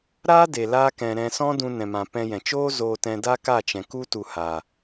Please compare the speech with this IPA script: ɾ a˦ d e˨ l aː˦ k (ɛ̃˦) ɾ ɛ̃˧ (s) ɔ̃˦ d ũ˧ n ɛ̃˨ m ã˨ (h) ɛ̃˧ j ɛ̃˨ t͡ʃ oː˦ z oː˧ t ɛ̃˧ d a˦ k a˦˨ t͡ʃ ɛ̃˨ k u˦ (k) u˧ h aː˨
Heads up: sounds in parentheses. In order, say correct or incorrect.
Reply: incorrect: ɛ̃˧, correct, incorrect: p, incorrect: t

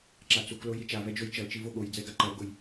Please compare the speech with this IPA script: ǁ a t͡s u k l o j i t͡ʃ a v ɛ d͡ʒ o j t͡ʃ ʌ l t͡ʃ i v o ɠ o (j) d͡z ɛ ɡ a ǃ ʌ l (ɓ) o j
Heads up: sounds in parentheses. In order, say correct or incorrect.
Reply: correct, incorrect: ɡ

